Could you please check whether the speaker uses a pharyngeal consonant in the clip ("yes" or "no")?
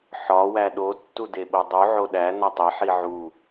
yes